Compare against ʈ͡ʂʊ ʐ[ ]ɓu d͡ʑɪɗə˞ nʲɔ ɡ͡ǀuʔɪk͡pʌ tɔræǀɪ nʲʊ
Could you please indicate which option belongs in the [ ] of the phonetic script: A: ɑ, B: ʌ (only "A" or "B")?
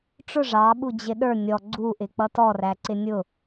A